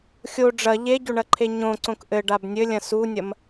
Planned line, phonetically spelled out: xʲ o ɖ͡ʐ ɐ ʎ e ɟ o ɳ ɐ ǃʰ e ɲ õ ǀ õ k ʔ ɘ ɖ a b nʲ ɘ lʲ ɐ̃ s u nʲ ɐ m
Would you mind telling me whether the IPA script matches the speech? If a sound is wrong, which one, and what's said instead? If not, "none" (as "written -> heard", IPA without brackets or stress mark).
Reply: none